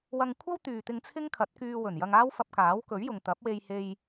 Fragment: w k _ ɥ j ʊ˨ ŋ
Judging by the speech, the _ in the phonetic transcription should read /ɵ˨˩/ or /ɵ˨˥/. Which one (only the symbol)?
ɵ˨˥